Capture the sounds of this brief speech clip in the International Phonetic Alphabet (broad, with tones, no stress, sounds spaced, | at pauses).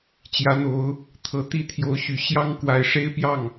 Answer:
t͡ɕ j ä˧˥ n̪ o˧˥ ʊ̯ | t̪ʰ ɤ˧˥ t̪ i˥˩ t̪ʰ j o˧˥ ʊ̯ ɕ y˨˩ ɕ j ɑ˥ ŋ k w a˧˥ ɪ̯ ʂ e˥ ɪ̯ p j ɑ˥˩ ŋ